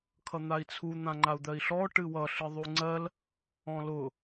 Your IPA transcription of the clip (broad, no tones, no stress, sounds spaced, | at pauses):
kʰ ʌ n̪ a i̯ t͡sʰ u n̪ ã ŋ͡ǃ a u̯ d̪ ɜ i̯ ɬ ɔ ʈ ɨ w ʌ ɬ ɨ ðˤ u ŋ͡ǀ ɜ l | ɔ̃ l ʊ